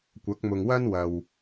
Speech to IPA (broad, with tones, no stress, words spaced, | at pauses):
kʷɐ˨˥k̚mʊ˨ŋwɐ˥n wɐ˨w